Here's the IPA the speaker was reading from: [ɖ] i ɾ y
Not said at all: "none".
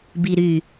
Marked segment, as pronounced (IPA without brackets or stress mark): b